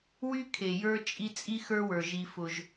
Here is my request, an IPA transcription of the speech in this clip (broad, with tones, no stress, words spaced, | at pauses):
wy˦kʰe˨ jə˞˦t͡ʃʼi˦ t͡sʼi˦xə˞˦wə˞˨ ʒi˦fʊ˦ʒ